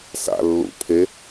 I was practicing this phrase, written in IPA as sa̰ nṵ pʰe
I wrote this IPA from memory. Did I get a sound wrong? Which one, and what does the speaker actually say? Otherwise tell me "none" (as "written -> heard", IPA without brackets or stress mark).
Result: n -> lː